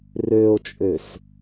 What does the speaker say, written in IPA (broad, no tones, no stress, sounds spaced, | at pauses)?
r ø o̯ t͡ʃʼ ø s